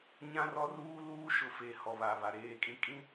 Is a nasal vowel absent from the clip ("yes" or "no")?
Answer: no